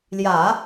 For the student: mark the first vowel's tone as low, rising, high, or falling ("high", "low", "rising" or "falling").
low